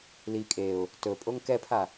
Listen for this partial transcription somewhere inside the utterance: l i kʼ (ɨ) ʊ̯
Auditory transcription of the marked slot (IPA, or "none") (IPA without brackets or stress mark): e